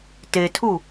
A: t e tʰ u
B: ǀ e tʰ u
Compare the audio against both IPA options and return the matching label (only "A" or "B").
A